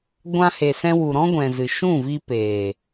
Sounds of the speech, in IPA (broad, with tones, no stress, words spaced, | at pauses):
ɡʷã˧he˨sɛ̃˧ wu˨ɾɔ̃˦ɡʷɛ̃˨ zɨ˨ ʃũ˦˨vi˧ peː˨